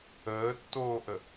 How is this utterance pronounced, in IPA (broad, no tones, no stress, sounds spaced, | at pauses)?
əː tː oː ʔ ə